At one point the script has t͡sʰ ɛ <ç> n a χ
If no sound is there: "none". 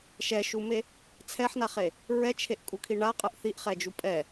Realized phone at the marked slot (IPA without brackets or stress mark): ħ